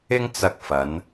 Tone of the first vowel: high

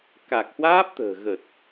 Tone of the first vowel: low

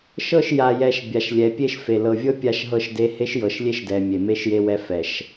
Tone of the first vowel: falling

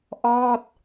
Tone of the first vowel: falling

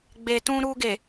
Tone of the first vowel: low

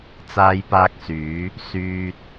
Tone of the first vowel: high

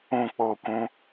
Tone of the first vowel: falling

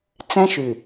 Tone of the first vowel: high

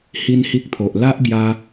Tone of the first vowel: high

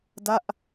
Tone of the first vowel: falling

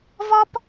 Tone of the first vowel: high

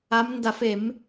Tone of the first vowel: rising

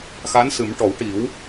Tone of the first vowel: rising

